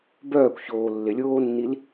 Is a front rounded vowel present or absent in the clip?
present